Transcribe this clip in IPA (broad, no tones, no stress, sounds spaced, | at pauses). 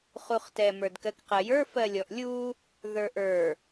χ u χ t ɛ m ə˞ d k ɜ k q ɜ j ə˞ f ɜ lʲ ɔ ʔ lʲ u | ð ə˞ ʔ ə˞